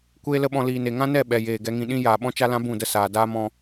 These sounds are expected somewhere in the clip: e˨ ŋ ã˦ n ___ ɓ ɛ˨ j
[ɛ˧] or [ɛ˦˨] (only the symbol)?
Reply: ɛ˦˨